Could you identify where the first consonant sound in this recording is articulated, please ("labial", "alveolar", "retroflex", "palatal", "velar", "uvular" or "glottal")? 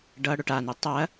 retroflex